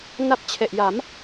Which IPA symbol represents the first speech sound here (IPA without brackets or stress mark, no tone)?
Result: n